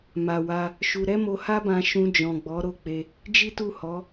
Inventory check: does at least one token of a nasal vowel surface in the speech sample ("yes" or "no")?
yes